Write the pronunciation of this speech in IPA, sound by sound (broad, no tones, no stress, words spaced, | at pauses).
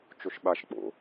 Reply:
t͡ʃoʃɓaʃ k͡po̰